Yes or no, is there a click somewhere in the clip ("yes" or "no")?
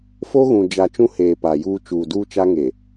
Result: no